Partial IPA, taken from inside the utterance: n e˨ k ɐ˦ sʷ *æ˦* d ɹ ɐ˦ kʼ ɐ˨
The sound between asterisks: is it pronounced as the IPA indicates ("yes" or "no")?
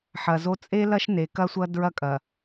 no